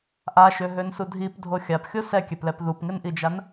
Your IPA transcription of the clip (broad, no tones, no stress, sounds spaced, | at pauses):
ʔ a ʃ ø ɦ ø n s u dʱ i p dʱ o xʲ a p xʲ o s ɛ kʲ ɛ p l ɛ p ð u p ŋ ɪ n ʔ i d͡ʒ a n